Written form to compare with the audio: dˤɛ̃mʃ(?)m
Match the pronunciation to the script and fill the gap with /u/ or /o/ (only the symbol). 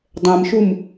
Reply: u